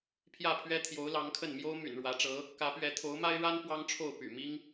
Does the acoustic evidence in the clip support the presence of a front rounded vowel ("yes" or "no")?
yes